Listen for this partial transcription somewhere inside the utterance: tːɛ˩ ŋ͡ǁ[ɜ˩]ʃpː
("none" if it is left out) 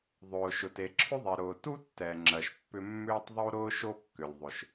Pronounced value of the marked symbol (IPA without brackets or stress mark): ɜ˩